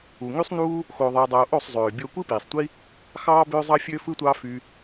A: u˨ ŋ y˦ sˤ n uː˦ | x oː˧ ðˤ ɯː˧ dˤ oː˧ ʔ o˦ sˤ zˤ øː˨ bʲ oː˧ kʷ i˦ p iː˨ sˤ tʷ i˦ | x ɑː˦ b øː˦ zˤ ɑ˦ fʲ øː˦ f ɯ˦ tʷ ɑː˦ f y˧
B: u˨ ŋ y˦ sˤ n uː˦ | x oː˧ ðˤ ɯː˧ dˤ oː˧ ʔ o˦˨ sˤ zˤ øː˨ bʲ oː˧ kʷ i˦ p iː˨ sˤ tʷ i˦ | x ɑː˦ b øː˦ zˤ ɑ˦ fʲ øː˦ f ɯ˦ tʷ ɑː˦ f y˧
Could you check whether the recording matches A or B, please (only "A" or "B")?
B